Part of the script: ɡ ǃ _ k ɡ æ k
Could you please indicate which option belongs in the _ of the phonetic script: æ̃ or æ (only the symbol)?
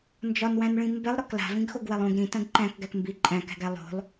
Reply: æ̃